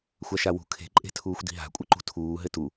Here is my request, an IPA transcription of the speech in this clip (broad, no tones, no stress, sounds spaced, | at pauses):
xʷ a ʃ a w ṳ kʰ e̤ ǃʼ e̤ tʰ uː xʷ d i̤ ɦ a̤ kʷʼ ɘ ǃ ṳ tʰ uː ɦ ɘ t u